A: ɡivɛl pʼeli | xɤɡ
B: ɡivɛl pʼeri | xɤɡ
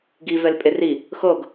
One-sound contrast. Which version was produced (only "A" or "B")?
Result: B